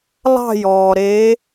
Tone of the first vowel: falling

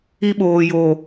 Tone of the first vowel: high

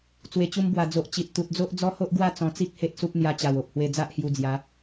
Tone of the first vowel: low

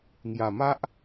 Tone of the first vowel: low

